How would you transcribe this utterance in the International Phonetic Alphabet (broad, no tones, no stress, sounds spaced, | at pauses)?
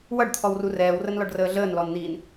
w ʌ ɖ t̪ʰ ɔ w r u r ɛː w r ə n l ɔ ɖ r əː ɮ əː n l ɔ n n̪ iː n